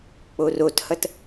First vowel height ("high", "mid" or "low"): mid